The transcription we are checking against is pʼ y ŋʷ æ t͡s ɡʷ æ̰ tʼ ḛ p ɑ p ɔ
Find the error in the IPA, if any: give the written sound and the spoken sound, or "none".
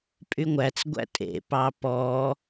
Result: none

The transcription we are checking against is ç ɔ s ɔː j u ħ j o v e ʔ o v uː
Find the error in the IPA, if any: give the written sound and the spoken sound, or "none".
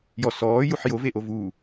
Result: ç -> j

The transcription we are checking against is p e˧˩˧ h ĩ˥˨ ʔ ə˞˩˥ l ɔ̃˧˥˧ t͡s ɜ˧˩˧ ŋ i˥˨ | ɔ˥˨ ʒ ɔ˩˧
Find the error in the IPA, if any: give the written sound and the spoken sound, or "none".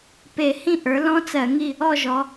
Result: none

